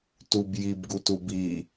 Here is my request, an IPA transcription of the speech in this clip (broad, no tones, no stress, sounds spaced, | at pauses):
t u b j i b ɡ u t u b i